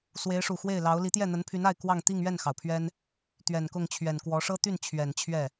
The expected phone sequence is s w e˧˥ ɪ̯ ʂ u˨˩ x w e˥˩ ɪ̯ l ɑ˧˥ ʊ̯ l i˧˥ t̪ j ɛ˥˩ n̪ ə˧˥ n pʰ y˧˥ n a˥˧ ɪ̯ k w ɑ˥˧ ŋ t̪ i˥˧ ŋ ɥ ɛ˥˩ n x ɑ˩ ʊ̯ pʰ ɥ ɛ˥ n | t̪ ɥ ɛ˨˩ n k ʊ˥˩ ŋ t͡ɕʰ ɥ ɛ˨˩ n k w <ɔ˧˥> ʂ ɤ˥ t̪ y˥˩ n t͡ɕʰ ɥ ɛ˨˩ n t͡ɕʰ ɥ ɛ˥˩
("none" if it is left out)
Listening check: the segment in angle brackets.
ɔ˧˥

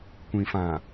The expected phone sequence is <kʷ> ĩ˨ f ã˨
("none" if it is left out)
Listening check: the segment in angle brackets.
kʷ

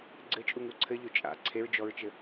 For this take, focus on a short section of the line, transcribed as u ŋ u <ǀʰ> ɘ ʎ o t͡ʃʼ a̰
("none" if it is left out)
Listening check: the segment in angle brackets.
ǀʰ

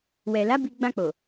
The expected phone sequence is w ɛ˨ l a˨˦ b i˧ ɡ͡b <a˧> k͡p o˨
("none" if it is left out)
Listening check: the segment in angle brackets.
ã˧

